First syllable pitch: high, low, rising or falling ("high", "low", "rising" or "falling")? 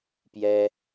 high